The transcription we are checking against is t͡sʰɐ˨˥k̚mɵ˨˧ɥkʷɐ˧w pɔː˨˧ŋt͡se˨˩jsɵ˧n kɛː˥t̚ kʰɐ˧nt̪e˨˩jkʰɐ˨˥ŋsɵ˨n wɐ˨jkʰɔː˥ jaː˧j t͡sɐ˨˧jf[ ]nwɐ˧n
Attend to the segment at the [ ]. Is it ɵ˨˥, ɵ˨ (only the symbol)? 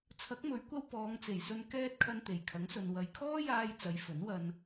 ɵ˨˥